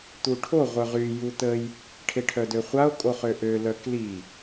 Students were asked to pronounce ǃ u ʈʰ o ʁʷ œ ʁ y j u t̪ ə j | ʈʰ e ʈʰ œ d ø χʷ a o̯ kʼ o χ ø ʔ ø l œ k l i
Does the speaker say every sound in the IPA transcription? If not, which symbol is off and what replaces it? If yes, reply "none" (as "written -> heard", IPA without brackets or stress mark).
ǃ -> t̪